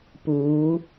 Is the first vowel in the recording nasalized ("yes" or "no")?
no